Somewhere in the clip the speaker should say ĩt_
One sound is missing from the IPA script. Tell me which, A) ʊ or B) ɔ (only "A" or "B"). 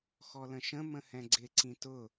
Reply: A